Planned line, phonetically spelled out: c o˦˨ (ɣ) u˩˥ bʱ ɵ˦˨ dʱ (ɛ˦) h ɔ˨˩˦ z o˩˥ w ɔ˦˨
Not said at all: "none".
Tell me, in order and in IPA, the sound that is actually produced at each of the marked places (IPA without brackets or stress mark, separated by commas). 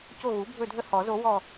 ɣ, ə˦